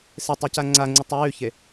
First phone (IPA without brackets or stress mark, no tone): s